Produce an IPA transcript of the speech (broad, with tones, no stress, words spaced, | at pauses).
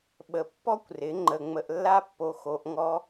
ɓə˧ pːɔ˦kʷrɪ˨˦ ŋ͡ǃə˧ ŋ͡mə˧ʔlːa˦pːo˧ xo˧ʔŋɔ˦